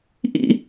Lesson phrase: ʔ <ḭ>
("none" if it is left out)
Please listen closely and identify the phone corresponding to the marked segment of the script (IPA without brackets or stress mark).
ḭ